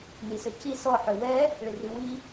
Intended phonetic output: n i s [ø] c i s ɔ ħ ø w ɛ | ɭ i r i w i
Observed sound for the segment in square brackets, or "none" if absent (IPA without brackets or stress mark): ø